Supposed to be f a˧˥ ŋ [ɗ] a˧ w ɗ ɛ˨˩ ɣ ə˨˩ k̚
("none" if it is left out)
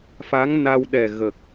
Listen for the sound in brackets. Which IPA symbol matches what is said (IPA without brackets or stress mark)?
n